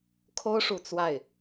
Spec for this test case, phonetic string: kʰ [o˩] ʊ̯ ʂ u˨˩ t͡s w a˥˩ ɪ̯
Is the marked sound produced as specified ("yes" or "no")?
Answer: no